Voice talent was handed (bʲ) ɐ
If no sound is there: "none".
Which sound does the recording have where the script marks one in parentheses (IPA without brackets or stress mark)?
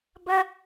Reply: b